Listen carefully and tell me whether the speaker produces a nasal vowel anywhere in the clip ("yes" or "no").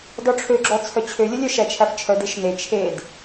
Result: no